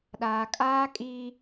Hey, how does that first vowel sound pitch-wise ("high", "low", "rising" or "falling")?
low